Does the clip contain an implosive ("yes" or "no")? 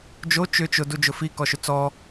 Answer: no